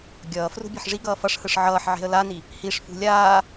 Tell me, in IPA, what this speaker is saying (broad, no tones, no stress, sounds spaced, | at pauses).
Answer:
ɡʲ ʌː f r ṳ bʲ e̤ ħ ʐ i ɡ ʌː f ʌ ʂ h ɯ ʂ ʕ ʌː ħ ʕ e̤ ə̯ l a n i | h i ʂ f ṳ lʲ aː